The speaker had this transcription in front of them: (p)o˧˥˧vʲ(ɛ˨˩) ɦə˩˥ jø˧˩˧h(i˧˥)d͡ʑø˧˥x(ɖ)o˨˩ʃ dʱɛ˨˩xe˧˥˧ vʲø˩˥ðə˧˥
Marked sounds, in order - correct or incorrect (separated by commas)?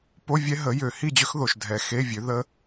correct, incorrect, incorrect, incorrect